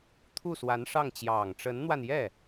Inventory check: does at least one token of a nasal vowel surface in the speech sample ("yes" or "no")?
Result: no